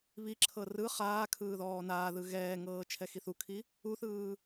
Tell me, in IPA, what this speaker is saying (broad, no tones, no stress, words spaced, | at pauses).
βiǁʰɤ rɯ χaːkʰɯː ðɔːnaːðɯ ɣɛːŋɤː t͡ʃʰɛxiθukʰi | uθɯː